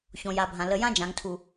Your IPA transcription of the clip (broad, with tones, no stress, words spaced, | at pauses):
çõ˨ja˨bʱã˨ lə˨jã˦d͡ʒã˨ŋtʰu˨